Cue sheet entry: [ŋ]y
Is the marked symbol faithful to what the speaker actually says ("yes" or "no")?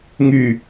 yes